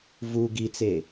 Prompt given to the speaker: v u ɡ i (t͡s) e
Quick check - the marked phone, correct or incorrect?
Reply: correct